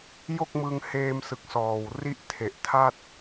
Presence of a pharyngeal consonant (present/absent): absent